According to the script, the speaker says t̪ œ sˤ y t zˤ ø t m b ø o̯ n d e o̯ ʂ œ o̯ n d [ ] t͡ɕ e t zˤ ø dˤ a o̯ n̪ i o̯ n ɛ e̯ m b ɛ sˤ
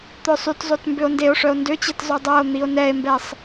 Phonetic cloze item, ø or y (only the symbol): ø